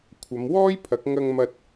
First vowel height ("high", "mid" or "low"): low